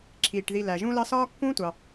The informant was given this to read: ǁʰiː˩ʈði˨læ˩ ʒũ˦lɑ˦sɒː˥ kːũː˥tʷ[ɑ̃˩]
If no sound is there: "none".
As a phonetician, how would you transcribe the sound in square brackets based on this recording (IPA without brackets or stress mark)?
ɑ˩